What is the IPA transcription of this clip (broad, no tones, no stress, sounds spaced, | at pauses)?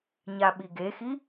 ɲ a ɓ i ɡ e x i